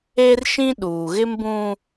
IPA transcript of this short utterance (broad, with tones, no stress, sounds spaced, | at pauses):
e˦ r ʃ ĩ˦ ɗ uː˨ ɣ ɪ˦ m b ũ˦